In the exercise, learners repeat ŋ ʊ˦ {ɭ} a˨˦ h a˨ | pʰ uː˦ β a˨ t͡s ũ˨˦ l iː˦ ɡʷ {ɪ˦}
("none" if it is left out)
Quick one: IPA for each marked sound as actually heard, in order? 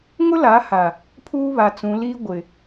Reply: l, ɪ˨

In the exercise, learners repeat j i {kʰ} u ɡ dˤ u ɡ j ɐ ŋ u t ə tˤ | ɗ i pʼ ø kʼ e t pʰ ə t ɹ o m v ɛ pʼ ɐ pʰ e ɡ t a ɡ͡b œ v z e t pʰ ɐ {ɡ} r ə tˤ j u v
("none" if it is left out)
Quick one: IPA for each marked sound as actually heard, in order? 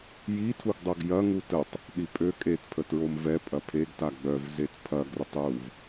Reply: tʰ, ɡ

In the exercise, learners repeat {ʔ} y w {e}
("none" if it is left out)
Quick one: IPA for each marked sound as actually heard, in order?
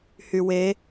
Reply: h, e

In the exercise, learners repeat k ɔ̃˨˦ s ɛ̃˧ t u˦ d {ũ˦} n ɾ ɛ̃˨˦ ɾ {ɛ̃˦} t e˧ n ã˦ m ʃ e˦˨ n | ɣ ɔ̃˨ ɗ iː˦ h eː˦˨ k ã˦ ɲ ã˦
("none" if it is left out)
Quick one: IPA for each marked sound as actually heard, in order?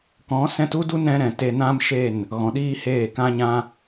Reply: u˦, ɛ̃˨

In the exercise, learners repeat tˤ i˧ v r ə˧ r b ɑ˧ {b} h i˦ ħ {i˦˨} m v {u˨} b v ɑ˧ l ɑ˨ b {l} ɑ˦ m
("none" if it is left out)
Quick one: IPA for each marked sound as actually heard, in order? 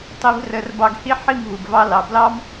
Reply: ɡ, i˦˨, u˨, l

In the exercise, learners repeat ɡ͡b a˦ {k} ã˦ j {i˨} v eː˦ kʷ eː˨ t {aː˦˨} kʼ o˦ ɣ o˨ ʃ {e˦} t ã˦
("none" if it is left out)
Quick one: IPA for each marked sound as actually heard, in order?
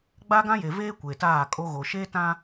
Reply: ɡ, e˨, aː˦˨, e˦

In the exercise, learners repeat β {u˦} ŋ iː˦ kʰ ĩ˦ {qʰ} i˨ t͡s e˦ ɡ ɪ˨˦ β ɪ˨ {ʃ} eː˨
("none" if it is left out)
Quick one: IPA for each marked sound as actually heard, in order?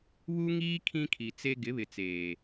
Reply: u˦, kʰ, t͡s

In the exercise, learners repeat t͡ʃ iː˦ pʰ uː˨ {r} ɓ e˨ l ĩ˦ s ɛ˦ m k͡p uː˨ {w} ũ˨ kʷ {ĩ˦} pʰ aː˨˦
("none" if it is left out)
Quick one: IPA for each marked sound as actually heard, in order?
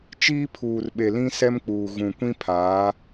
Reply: r, ɣ, ĩ˦

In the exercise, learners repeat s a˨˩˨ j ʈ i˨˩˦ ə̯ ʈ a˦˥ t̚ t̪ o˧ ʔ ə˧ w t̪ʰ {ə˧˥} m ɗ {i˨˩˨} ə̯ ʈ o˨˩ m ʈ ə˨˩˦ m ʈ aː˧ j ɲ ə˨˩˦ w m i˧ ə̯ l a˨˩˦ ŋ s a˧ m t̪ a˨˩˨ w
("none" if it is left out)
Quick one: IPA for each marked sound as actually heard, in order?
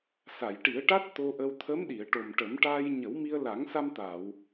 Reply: ə˧˥, i˨˩˨

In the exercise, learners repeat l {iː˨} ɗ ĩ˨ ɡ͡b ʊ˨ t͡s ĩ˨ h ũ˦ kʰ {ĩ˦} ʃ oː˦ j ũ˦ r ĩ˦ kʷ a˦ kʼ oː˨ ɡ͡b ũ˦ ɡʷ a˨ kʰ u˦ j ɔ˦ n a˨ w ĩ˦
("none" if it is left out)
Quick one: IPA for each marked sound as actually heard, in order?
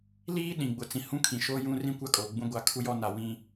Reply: iː˦, ĩ˨

